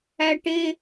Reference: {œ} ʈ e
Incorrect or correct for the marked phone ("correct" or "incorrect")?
incorrect